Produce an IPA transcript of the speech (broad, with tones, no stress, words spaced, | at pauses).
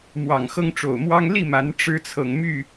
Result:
mwɑ˨˩ŋxɤ˦ŋʈ͡ʂo˨˩ʊ̯mwɑ˦ŋ li˥˨ma˨˦n ʈ͡ʂɻ̩˦t͡sʰɤ˨ŋ my˥˨